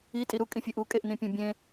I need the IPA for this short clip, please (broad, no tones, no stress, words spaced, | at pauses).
itʼi ɾukʼĩfʲɯ ʔukʼeʔnĩpʲõ bʲẽ